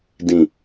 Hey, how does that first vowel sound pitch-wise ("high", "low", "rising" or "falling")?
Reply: low